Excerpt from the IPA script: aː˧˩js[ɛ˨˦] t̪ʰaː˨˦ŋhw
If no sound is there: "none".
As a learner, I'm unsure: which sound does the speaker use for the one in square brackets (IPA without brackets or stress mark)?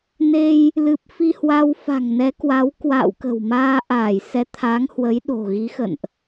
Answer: ɛ˨˦